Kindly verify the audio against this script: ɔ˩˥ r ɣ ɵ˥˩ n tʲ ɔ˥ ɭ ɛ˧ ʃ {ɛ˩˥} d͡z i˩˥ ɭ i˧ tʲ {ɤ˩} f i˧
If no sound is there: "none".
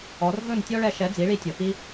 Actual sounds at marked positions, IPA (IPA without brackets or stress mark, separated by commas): ɛ˩˥, ɤ˩